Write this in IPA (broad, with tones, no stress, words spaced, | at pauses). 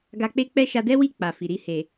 ɡa˧k͡pe˦k͡pɛ˦ ʃa˧dɛ˦wi˦˨ k͡pa˨fi˨ɾi˧ he˨